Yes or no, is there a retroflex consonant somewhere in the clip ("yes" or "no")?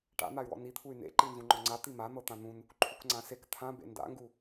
yes